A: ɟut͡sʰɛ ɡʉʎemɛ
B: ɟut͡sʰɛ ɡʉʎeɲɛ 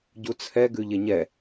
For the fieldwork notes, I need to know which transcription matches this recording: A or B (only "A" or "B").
B